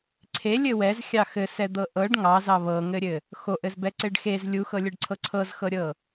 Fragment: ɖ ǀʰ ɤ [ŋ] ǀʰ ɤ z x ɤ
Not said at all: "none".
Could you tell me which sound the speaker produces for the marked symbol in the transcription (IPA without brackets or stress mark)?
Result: none